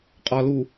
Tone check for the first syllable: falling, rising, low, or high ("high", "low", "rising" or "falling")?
low